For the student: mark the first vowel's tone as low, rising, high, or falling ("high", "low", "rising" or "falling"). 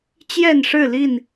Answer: falling